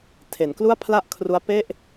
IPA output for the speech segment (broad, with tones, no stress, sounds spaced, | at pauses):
tʰ e˩˦ n k l u˥˩ a̯ pʰ l a˥˩ ʔ kʰ r u˦˥ a̯ p e˥˩ ʔ